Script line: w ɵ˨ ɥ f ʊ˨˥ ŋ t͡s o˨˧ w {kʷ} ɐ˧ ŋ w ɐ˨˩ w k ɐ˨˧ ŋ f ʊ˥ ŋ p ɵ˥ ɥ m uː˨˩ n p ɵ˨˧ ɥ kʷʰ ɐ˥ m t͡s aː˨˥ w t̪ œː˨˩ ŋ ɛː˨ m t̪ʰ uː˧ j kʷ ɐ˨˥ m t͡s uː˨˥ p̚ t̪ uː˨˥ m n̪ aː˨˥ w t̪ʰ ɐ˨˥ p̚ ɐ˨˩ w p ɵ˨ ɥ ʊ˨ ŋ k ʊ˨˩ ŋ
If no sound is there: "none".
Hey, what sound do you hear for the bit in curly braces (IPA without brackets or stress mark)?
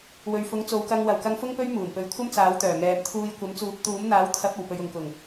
k